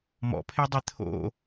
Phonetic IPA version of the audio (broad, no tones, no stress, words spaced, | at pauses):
mɔ̰pʰedˤe t̪ʰo̰